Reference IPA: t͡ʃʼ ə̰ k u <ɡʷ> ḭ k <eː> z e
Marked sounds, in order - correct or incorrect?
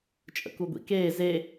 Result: correct, correct

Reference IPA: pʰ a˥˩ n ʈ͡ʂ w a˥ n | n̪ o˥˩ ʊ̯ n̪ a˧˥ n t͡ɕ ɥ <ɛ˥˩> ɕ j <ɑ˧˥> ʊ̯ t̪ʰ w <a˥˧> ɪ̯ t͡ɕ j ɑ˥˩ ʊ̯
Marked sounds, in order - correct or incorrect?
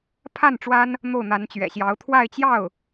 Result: incorrect, correct, correct

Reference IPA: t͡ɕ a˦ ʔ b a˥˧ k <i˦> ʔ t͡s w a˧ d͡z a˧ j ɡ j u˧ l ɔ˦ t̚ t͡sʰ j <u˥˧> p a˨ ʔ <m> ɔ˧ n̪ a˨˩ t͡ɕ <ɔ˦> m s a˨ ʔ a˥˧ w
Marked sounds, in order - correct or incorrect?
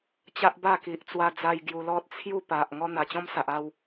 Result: incorrect, correct, incorrect, incorrect

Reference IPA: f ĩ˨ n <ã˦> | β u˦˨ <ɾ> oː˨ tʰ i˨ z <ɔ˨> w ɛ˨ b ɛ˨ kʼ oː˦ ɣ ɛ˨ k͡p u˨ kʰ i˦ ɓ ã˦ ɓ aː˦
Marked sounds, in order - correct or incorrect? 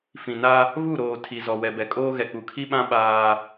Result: incorrect, correct, correct

